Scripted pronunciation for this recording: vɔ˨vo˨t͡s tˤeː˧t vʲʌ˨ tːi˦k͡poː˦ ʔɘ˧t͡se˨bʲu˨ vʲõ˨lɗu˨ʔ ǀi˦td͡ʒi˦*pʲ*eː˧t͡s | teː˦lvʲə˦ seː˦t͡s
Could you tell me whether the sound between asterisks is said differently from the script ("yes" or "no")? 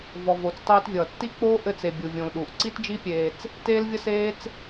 no